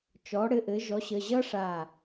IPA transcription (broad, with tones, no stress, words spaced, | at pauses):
t͡ʃɔ˩˥ɽɘ˩˥ʔɘ˩˥ ʒɔ˩˥ɕə˩˧˩ʑʌ˥ʂa˧˩